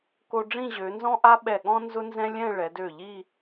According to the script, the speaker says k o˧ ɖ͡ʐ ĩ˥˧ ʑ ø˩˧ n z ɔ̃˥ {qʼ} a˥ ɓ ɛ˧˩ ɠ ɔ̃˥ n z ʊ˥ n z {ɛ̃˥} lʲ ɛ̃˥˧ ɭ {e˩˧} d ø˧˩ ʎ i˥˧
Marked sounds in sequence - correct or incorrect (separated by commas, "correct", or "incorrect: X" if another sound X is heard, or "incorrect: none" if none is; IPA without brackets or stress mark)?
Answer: incorrect: ʔ, correct, incorrect: ɛ˩˧